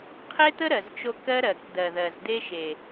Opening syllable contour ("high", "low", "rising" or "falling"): high